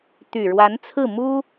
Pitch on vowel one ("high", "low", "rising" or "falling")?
low